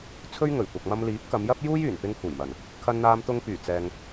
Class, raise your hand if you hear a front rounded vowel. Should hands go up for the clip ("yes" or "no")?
yes